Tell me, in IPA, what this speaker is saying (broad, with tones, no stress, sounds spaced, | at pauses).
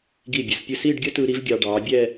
ɡ i˧˩ bʲ ə˩˧ s pʲ ɯ˧˩ s i˥˧ ɖ ɡʲ ə˥ t ɯ˧ ɾ i˥ v ɡʲ ɑ˧ ɖ ɑː˩˧ bʲ ɛ˥˧